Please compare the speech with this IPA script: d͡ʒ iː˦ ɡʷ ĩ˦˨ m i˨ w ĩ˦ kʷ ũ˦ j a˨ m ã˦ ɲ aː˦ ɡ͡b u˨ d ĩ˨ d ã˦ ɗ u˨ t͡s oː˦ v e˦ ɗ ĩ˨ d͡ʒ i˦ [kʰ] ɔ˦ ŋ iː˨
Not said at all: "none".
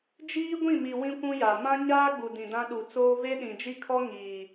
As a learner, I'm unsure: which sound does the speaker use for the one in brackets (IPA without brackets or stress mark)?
kʰ